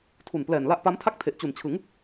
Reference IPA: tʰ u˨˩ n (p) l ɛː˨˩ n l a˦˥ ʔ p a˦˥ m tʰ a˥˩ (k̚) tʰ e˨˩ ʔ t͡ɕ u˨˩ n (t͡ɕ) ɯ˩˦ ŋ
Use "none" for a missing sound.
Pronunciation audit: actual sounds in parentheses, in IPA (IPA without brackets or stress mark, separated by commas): p, k̚, t͡ɕʰ